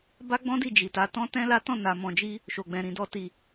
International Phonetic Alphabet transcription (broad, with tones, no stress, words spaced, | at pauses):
ba˦ɡ͡bɔ̃˦ di˦˨ d͡ʒi˨ta˨˦tɔ̃˦ tɛ̃˦la˦ tɔ̃˦˨na˨ mɔ̃˨d͡ʒi˧ | ʃo˨ɡ͡bɛ̃˨ɾĩ˨dɔ˧ ti˨